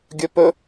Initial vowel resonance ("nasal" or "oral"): oral